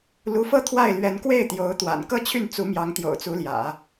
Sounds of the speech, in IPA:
lu˧˥fɤ˥ t̪ʰwa˥˩ɪ̯lɥɛ˧˥n kwe˥˩ɪ̯ t̪jo˧˥ʊ̯t̪wa̰˨˩n kɤ˥˧t͡ɕʰy˥˩n t͡su˧˥mjɑ˧˥ŋt̪jo̰˨˩ʊ̯ t͡su˧˥ljä̰˨˩˦

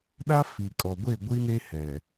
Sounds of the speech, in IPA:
ɗa˦fi˨kʼɔ˨ɡʷe˦˨ ɡʷi˦ne˦hɛ˨

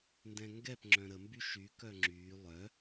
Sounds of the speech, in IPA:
ndɛ̃ŋɡɛp ŋ͡ǁœ̃ɾə mbyʃy kœŋ͡ǁyː lˠœ

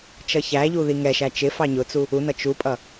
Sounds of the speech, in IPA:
t͡ʃʌçæʎu ðiŋɛʃæ t͡ʃɪfɑ ɲʊt͡su | unʌ t͡ʃupʼʌ

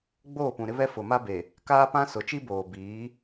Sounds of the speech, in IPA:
ɡ͡boː˦˨pũ˨ ɾɪ˦βɛ˦ fʊ˨ma˦be˨ | kaː˦pã˦ sʊ˨t͡ʃi˦boː˨ biː˨˦

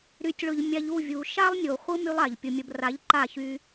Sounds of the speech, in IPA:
ɾy˨tʲɭʊ˨ʎ mʲa˧ʎ u˦˨vʲu˨ ʃa˦lˠnʲo˨ χʷɯ˦ my˦lˠa˨ʎpʲʊ˧mʲə˧b ra˨˦ʎ ǃa˦˨çy˧

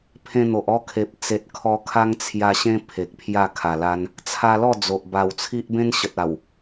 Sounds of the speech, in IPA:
pʰẽ˧n̪o˨ʔɔ˥˧kʰe˨p̚ t͡se˨t̚kʰɔ˧ kʰa˦ŋt͡sʰja˧ɕẽ˦ pʰe˨k̚ pʰja˥˧ kʰa˨˩la˧n | t͡sʰa˧lɔ˥˧ d͡zo˨ʔ ba˨˩wt͡sʰi˦ʔ bẽ˦nɕə˨t̚a˨˩w

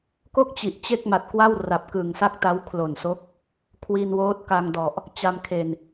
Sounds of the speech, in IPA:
ko˥˩k̚t͡ɕi˨˩ʔ t͡ɕe˥˩k̚ma˨˩t̚kwa˥˩w ra˨˩p̚kɯ˨˩ŋsa˥˩k̚ta˦˥w kʰlo˨˩nso˦˥k̚ | kʰwi˧nwoː˦˥t̚ ka˧ŋdɔ˨˩ʔ | t͡ɕa˧mkʰe˨˩n

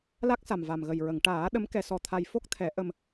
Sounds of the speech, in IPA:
la˦˥k̚sa˨˩m va˨˩mɣə˨˩jɹə˨˩˨ŋ ʈaː˨˩˦ ɗə˧˥m kɛ˧sɔ˧ t̪ʰa˧j fo˦˥k̚t̪ʰɛ˨˩˦ ʔə˧m

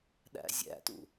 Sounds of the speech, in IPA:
ɗæ̰zʲæ̰tṵ

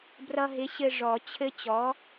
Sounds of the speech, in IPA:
brʌ˧ɦɪ˨˥ɕɘ˧ ʐɔ˨˩˦ t͡ɕʰɘ˦˥t͡ɕɔ˨˥

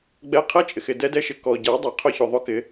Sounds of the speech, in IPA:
ɡ͡bɛ˧ qʰɛ˦t͡ʃʼɪ˨xɪ˨ dɛ˧dɛ˧ʃɪ˨ kɔ˨ ɟa˨˦ dˤa˨qʰʊ˧çʊ˨ ðˤʊ˦kɪ˧

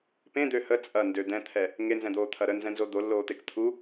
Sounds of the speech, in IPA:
pẽd̪ø hə t͡sʼɐndø d̪ɛ̃t̪ʰɛ | ŋenzɛ̃d̪oːt̪ʰɐ ɾənzɛ̃nzo d̪olːoːt̪ek t̪ʰu

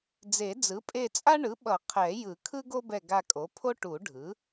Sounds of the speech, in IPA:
d͡ze˨˩˦d͡zɯ˩˥pʼe˦˨t͡sʼa˥ ɳɯ˩˥ɓʌ˨˩˦ qʰɛ˨˩˦jɯ˨˩˦ kʰɯ˥ɡo˥bɛ˦˨ ɡa˦˨kʼo˩˥pʰo˥ ʈu˨˩˦ɖʱɯ˩˥

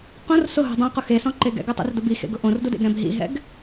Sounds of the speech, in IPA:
qõr sʊɦṳ dˤõqʊ xesɔ̃ǃe ɡɛ̰ɡʊtˤḭrdʊb ixḛɡʊ ʔõrdudḛɡɾɛ̃b ɦḭɦɛ̰ɡ

